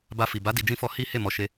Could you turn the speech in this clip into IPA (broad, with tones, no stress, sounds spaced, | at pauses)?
b a˧ f i˨ b a˨˦ d i˧ d͡ʒ ĩ˦ f ɔ˦ h i˦ h e˦˨ m ɔ˨˦ ʃ e˧